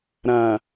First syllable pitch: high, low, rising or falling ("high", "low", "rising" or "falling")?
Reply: low